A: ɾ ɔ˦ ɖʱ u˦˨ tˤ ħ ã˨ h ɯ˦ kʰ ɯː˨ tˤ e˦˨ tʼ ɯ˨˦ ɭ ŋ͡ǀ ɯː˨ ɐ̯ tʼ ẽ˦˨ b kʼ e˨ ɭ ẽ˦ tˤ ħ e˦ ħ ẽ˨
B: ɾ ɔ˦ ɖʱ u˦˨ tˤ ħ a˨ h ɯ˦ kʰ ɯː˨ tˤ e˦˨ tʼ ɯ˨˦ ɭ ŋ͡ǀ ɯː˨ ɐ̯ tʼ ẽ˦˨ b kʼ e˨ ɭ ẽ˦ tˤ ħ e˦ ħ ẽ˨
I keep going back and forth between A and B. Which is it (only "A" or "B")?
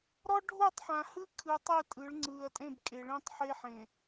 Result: A